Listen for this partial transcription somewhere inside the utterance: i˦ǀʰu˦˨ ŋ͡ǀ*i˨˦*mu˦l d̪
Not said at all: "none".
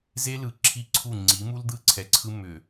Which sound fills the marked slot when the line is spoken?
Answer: i˨˦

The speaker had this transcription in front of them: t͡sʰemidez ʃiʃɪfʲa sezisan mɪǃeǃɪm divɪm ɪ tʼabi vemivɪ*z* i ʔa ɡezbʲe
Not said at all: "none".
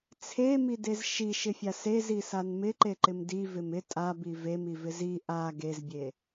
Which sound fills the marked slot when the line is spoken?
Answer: z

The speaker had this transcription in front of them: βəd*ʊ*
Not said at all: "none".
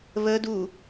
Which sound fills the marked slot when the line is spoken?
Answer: u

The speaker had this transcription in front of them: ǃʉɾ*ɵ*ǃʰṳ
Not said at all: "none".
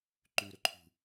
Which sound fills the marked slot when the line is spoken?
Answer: ɵ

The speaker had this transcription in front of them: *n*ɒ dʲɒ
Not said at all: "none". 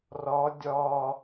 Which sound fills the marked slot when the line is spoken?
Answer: r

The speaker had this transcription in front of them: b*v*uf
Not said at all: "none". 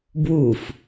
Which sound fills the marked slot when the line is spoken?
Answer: w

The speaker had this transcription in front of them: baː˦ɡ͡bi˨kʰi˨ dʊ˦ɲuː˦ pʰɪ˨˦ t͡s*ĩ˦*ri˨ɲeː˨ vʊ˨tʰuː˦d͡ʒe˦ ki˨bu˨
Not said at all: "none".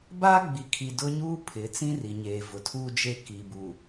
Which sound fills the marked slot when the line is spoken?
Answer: ĩ˦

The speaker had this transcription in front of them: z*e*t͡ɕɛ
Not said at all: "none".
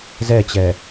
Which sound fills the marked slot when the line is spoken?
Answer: ɛ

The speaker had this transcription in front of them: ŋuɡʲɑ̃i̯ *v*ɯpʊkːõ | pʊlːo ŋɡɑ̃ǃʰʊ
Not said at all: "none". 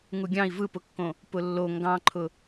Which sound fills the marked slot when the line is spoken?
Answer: v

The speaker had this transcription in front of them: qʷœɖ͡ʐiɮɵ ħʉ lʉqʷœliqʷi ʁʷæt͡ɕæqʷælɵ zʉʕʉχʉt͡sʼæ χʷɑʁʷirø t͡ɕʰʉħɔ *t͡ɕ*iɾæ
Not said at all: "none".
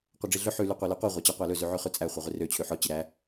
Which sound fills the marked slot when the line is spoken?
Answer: t͡ɕ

